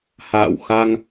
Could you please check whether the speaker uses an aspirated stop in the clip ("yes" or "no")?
no